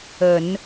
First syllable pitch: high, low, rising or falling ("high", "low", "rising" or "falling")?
low